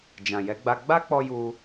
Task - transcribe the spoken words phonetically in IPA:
d͡ʒ ã˨ j ɛ˨˦ ɡ͡b a˧ ɡ͡b a˦ k͡p ɔ˧ j u˧

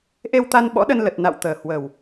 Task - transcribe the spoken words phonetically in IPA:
ʔ e˧ w t̪ a˧ n ɓ ɔ̰˧˥ ɗ ə˧ n l ə˨˩ t̚ n a̰˧˨ w t̪ əː˨˩ h w əː˨˩ w

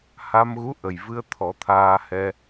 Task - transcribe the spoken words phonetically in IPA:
h a˧ m ɣ u˧˥ ʔ ə˨˩ j v ɨ˧ ə̯ t̪ʰ ɔ˨˩˦ t̪ʰ aː˧ h ɛ˧

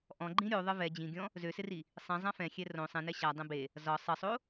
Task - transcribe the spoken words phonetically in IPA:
ʔ ɔ̃ ɡ͡ǃ ĩ ɾʲ o ðˤ ɘ v ɛ d͡ʑ ĩ ɡʲ ɔ̃ | z ø s ɪ r i | sˤ ĩ zˤ ã f ɛ̃ xʲ ɛ r õ sˤ ẽ n ɛ ɕ a dˤ ɛ̃ b e | z ɒ sˤ ɘ sˤ o

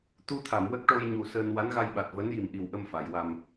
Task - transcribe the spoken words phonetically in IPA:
t̪ u˧ t̪ʰ a˨˩˨ m w ə˦˥ k̚ ʈ o˧ j ɲ u˨˩ s əː˧ n w a˧˥ n ɣ a˧ j ɓ a˨˩ t̚ v əː˧˥ n j i˨˩ m ʔ i˨˩ w ʔ ə˧ m f a˨˩˨ j w a˧ m

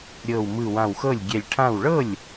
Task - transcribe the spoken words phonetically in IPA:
ɾʲ ɤ˧˩ w m ɯ˧˩ w ã˧˩ w x ɤ˥˩ lʲ ɡʲ ɛ˧˩ lʲ ʈʰ ã˥˩ w ɭ ɤ˥˩ lʲ

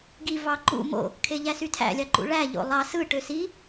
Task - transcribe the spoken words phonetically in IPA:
ɡ i v ɑ ǃ ṵ m o̰ | kʰ e ʎ æ s y tʰ æ̰ lʲ ɑ ǃ ṵ ɭ æ ʎ o̰ lˠ ɑ s ɯ ʈ ø s i

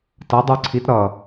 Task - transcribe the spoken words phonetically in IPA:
t ʌ dˤ ə˞ ǀʰ i t ɾ ʌ

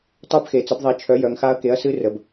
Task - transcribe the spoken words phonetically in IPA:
tˤ œ˦˥ b x e˩˧ t͡s ə˨˥ b ðˤ ɛ˨˥ t͡ʃʰ œ˨˥ j œ˩˧ ŋ x a˦˥ ɐ̯ k e˨˥ ɐ̯ s ɨ˦˥ r ə˩˧ b

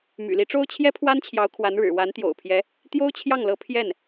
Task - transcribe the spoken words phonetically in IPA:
m y̰˨˩ l i˧˥ ʈ͡ʂ o˥ ʊ̯ t͡ɕʰ j ɛ˥ pʰ w a˥ n t͡ɕʰ j ɑ˧˥ ʊ̯ kʰ w a˧˥ n ɻ ɻ̩˨˩ w a˧˥ n t̪ j o̰˨˩ ʊ̯ pʰ j ɛ˧˥ | t̪ j o˥ ʊ̯ t͡ɕʰ j ɑ˥˩ ŋ l ɤ˧˥ pʰ j ɛ˥˩ n

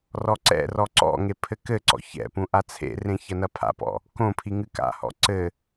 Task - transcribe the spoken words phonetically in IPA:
r ɔ ǀ ɛ̰ r ɔ ǀ ɔ̰ ŋ e pʰ ɘ k ɘ ǀ ɔ̰ ç ɛ̰ p ũ ʔ a t͡sʰ ḛ r ẽ ç ɐ n ɐ pʰ a̰ p ɔ̰ | k õ pʰ i ŋ ɨ k a̰ h ɔ̰ ǀ ɘ

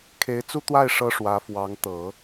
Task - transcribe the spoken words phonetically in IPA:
kʰ e˧˥ ɪ̯ t͡s u˥ t̪ w a˥˩ ɪ̯ ʂ ɤ˥ ʂ w ä˧˥ f w ɑ˧˥ ŋ t̪ ɤ˨˩˦

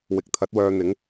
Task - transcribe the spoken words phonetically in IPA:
w ɪ˨ k̚ t̪ʰ ɐ˨˥ t̚ w œː˧ n̪ ɪ˨˥ ŋ

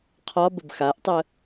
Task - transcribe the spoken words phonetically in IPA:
qʰ ɒ b ə b x a ʔ tˤ ə

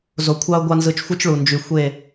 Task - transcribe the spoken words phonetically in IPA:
z o˨ kʷʰ ɑ˦ ʊ̯ ɡʷ ɑ˦ n z ɯ˨˦ t͡ʃ xʷ ɯ˦ t͡ʃ ɭ u˨ n d͡ʒ y˨ xʷ e˦˨

